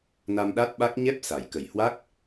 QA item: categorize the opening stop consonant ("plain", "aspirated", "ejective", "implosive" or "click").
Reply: implosive